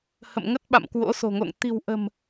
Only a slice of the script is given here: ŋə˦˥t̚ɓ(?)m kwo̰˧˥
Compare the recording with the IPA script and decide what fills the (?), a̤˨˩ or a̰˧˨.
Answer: a̰˧˨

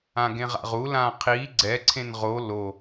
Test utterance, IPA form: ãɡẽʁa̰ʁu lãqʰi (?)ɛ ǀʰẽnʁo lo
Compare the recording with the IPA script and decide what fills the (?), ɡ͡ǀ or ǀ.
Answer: ɡ͡ǀ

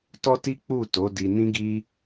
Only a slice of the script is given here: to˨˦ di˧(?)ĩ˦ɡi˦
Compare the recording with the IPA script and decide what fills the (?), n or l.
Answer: n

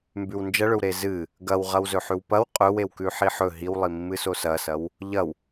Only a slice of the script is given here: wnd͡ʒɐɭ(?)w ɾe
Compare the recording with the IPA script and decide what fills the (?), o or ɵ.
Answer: ɵ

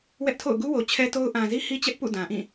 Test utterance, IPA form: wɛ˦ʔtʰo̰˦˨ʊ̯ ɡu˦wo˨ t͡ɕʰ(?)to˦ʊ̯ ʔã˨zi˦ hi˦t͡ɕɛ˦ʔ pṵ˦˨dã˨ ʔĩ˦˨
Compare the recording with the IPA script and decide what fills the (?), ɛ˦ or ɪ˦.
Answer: ɛ˦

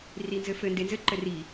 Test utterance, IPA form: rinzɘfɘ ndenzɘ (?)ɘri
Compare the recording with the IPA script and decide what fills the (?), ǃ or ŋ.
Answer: ǃ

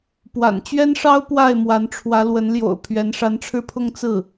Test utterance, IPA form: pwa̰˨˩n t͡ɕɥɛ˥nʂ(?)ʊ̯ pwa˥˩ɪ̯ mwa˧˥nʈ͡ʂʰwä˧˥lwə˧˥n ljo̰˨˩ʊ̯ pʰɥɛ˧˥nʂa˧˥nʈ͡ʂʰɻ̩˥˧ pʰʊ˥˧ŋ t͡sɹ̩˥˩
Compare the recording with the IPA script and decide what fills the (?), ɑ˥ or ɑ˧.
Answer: ɑ˥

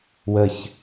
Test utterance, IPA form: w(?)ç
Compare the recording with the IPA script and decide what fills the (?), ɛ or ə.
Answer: ə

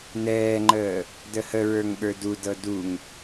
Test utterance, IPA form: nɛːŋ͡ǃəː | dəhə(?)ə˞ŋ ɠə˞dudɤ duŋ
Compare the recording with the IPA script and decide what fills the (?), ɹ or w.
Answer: ɹ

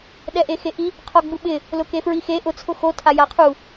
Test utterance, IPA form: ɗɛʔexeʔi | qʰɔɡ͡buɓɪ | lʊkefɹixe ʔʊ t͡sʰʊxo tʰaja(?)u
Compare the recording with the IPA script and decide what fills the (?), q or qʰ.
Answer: qʰ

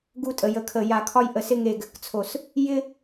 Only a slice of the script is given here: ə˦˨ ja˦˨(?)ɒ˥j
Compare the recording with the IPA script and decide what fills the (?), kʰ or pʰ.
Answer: kʰ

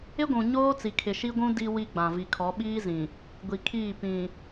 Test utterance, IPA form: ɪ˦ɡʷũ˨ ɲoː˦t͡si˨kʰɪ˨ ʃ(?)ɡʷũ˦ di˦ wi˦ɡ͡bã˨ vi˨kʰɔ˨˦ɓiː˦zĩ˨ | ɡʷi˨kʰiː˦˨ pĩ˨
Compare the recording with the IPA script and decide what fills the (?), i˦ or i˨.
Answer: i˦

